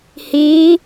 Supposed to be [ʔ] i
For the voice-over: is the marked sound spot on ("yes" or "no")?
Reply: no